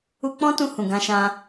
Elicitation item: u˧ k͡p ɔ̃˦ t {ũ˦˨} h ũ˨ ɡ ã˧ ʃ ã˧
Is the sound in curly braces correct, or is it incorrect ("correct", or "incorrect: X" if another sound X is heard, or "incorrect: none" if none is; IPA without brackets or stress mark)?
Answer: incorrect: ũ˧